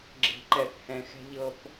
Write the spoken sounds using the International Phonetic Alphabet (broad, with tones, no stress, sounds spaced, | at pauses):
ɡ͡ǁ e̤˨ ǃ ɛ˨ θ h ɛ̃˨ x ɛ̤˧ ʎ ɤ˧ p